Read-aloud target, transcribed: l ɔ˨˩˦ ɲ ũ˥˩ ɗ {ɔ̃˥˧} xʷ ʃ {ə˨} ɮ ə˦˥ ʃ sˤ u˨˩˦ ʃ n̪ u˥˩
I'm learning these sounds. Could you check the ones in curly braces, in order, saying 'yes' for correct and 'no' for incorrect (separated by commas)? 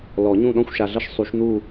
yes, no